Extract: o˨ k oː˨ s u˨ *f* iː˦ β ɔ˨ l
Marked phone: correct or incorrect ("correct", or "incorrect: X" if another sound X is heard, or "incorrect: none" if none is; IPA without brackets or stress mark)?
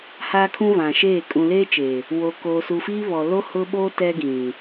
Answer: correct